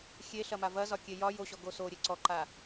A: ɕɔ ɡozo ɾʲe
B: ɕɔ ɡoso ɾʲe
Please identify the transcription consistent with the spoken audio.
B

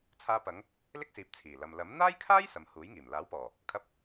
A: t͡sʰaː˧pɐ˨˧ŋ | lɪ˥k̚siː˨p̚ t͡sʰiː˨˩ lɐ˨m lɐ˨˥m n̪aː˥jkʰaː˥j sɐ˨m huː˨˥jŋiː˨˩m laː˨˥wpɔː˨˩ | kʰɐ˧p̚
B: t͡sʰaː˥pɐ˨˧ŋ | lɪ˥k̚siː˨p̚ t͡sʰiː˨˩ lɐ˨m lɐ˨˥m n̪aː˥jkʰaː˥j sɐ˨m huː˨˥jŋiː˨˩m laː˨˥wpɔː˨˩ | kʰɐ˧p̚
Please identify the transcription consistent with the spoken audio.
A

